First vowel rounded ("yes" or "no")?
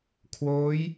yes